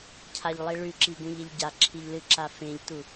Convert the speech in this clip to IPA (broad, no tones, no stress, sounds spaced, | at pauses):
cʰ a ʎ lˠ i ɭ ʉ ǁ i ɡ ũ ʎ e ʎ ɟ a ǁʰ i ʎ l ɨ ǁ a f ẽ ʎ t u